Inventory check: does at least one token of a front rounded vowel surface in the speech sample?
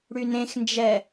yes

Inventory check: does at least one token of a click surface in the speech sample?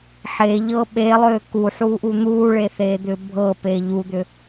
no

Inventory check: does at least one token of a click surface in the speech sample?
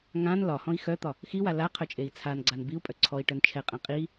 yes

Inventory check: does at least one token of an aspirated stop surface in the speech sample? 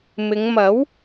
no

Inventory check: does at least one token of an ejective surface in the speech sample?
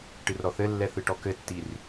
no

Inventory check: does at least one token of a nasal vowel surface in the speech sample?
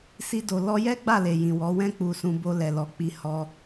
yes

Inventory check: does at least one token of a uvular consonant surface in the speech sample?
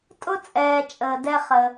yes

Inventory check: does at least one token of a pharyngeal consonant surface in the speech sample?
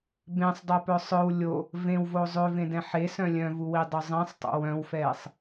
yes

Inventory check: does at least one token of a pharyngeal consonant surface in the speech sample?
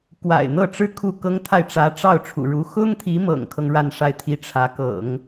no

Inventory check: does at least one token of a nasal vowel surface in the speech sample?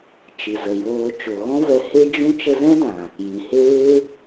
yes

